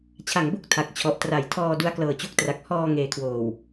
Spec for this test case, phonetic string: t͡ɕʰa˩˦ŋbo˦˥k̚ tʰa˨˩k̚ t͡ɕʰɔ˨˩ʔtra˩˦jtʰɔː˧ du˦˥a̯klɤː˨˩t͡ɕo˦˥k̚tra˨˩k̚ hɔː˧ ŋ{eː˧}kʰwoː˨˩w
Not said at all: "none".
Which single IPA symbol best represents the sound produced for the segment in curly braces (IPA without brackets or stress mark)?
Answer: eː˨˩